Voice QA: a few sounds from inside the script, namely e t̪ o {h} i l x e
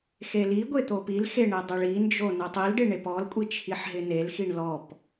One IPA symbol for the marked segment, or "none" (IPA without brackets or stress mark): p